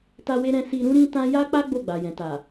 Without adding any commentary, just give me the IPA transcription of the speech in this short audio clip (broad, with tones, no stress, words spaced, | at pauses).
ta˦we˦ɾɛ̃˦ si˧ ɾũ˦ɾĩ˦tã˦ ja˦k͡pa˦ ɡ͡bo˦˨ɡ͡ba˨jɛ̃˨ta˨